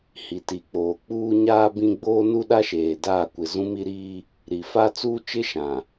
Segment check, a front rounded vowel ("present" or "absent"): absent